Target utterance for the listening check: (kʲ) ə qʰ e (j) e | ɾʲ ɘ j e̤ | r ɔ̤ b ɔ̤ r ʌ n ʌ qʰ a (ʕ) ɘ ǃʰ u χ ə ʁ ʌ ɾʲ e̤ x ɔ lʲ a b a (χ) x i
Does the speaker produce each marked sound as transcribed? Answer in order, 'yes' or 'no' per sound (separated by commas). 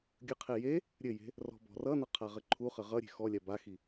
no, yes, no, no